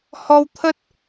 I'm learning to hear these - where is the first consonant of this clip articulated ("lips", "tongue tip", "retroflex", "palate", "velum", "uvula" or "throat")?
throat